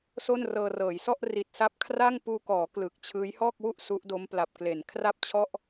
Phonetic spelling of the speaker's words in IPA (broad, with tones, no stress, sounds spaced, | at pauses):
s o˥˩ n r ɤː˧ r ɤː˩˦ j s ɔ˥˩ ʔ r i˨˩ t̚ s a˦˥ p̚ kʰ r a˥˩ ŋ p uː˧ k ɔː˩˦ k l ɯ˨˩ k̚ t͡ɕʰ ɯː˦˥ j h ɔː˥˩ k̚ w u˥˩ ʔ s u˦˥ ʔ d o˦˥ m p l a˨˩ p̚ k l e˩˦ n kʰ r a˥˩ p̚ t͡ɕʰ ɔ˥˩ ʔ